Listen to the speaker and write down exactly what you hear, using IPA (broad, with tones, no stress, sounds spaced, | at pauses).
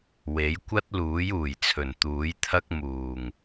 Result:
w e˨˥ j kʷ ɐ˥ t̚ l uː˨˥ j uː˨˩ j t͡sʰ ɵ˨˩ n t̪ uː˨˥ j t̪ʰ ɐ˥ k̚ m uː˨˩ ŋ